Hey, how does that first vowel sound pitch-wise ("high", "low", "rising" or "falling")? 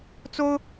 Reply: high